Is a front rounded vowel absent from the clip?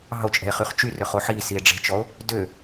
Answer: no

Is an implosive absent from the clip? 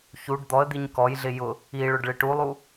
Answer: yes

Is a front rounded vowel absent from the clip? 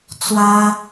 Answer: yes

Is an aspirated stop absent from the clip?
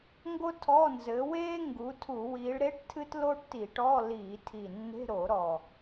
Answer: no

